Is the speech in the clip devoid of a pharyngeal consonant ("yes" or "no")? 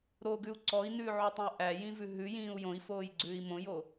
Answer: no